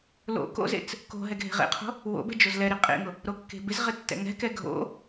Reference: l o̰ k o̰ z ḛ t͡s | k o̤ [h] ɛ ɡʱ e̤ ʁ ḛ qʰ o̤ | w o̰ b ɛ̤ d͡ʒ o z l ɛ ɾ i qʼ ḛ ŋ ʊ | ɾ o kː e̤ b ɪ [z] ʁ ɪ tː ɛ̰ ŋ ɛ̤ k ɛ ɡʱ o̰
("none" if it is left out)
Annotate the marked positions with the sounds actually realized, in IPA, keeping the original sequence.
ɦ, z

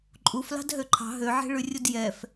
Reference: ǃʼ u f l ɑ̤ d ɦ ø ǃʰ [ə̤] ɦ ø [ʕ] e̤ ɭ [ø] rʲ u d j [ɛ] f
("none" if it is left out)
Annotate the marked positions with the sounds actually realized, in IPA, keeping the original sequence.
ɑ̤, ʕ, ʉ, ɛ

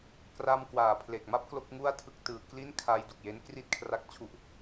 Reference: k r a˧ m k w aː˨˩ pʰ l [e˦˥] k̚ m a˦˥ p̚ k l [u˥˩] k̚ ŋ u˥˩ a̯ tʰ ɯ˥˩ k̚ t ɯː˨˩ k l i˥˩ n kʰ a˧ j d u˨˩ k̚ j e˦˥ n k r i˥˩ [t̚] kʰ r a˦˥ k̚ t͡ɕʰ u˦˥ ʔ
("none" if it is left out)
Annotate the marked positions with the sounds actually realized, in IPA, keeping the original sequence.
e˨˩, o˥˩, t̚

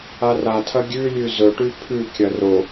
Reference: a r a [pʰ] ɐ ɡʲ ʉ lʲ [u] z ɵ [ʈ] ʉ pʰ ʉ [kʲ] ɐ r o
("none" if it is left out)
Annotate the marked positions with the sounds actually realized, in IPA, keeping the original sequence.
tʰ, ʉ, ʈ, kʲ

